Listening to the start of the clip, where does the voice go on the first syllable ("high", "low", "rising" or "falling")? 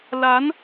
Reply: rising